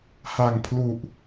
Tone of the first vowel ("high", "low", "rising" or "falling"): low